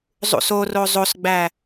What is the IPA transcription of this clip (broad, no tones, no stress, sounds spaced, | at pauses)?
zˤ ṵ s o r o zˤ o s ɡ͡b æ